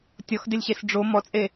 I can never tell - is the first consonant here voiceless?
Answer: yes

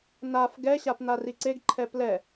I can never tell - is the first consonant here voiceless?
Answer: no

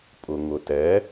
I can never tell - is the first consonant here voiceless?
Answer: yes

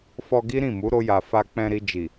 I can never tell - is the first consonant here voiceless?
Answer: yes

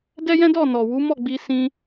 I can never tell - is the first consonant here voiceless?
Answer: no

